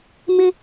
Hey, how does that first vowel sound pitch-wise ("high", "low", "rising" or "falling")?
high